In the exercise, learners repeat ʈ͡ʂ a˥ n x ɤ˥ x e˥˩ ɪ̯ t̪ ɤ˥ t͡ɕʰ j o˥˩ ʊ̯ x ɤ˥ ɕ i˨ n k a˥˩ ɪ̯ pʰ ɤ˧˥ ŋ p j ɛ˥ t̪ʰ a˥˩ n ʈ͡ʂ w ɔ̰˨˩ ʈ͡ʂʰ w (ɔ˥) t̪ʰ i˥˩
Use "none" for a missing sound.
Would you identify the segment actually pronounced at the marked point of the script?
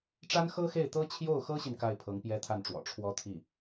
ɔ˥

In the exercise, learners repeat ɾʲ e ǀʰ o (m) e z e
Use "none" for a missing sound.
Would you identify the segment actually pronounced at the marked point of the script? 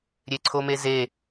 m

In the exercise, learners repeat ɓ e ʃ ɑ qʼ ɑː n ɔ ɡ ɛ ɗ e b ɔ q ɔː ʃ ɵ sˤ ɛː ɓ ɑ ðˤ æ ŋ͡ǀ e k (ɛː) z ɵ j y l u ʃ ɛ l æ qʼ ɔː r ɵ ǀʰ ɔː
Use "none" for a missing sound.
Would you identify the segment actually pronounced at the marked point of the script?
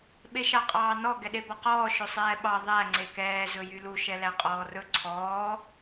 ɛː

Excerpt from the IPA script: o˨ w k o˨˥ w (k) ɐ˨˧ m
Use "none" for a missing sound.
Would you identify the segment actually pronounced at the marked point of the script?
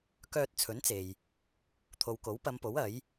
p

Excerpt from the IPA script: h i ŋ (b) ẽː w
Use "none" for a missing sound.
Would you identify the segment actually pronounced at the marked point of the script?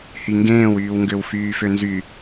ɡ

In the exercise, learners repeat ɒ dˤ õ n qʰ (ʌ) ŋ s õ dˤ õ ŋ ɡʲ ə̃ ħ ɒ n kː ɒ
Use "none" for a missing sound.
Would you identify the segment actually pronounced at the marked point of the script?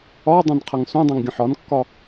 ʌ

